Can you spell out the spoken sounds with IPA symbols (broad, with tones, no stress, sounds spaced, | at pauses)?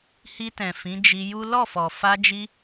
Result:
h i˧ t ɛ̃˨ f ĩ˨˦ d͡ʒ i˧ j u˦ l ɔ˦˨ f ɔ˨ f a˧ d͡ʒ i˧